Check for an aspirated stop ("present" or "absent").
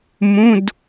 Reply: absent